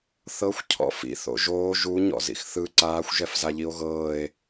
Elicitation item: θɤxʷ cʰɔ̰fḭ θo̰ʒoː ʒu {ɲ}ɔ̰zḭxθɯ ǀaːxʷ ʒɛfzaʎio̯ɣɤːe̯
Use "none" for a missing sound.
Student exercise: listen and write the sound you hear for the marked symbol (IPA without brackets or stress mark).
ɲ